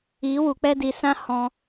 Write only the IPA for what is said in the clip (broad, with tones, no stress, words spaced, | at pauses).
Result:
i˨˦wu˨k͡pɛ˦ di˨sã˦ hɔ̃˧